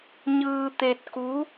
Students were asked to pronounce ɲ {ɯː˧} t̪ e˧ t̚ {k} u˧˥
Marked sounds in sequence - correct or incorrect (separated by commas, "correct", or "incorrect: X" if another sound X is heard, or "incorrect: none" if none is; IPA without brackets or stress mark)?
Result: correct, correct